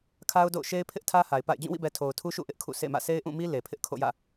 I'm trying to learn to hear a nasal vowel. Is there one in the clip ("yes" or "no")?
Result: yes